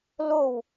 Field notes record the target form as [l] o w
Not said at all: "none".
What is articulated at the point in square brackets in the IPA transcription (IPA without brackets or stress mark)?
l